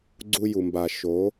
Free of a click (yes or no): no